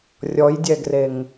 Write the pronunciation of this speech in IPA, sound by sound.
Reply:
rʲ ɔ j dʲ ɛ ɡ r e ŋ

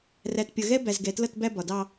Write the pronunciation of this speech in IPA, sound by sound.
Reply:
r æ˨ t pʲ ʌ˨ ɣ ɛ˦ b æ˨ z ɡ ɛ˨ t l ʌ˦˨ t b æ˦ b ɒ˨ d ɑ˦

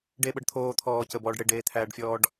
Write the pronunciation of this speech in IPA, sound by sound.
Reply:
ɖ e ɓ ɤ ɖ t̪ʰ oː t̪ʰ ɔː c ə b ɔː ɖ ɽ e ɖ eː t̪ʰ æː ɖ fʲ ɔː ɖ

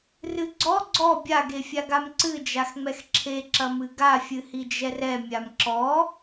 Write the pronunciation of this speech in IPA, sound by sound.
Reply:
r ɨ ɡ͡ǀ ɔ ɡ͡ǀ ɔ bʲ a ɡ e fʲ a ɡ a m ǀ ɨ d͡ʒ a x ŋ͡m ɛ x ǁʰ e ǁ ɐ m ɨ ɡ a fʲ ɨ h i d͡ʒ ɛ r ɛ mʲ a m ǁ ɔ

